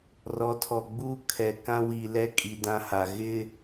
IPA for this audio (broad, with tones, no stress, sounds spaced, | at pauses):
r ɔ˨˦ tʰ ɔ˨ ɡ͡b uː˦ kʰ ɛ˨ k ã˦ w i˨ l ɛ˦ kʼ i˨ d ã˦ h a˨ ɣ ɪ˦